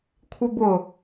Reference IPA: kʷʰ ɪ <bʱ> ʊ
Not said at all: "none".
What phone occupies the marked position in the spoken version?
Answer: b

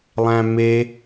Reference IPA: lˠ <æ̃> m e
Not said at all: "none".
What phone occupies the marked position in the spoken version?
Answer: æ̃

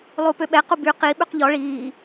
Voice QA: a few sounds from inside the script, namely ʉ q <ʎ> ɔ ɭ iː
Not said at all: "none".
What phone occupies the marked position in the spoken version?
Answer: ʎ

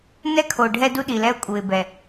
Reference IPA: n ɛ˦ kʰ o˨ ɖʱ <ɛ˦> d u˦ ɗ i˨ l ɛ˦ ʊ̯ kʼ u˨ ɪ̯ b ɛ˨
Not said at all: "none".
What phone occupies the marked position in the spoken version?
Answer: ɛ˦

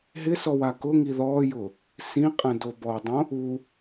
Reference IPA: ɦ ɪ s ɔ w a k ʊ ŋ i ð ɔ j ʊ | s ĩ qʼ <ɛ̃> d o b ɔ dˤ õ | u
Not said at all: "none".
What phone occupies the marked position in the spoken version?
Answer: ɛ̃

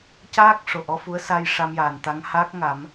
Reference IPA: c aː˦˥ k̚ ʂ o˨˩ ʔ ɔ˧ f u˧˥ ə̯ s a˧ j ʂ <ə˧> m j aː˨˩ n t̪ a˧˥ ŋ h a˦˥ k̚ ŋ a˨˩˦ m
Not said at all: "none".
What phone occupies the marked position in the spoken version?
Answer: a˧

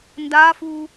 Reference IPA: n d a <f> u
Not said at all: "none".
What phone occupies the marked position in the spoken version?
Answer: f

